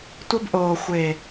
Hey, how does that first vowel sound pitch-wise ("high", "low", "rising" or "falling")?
high